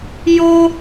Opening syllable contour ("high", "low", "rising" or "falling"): high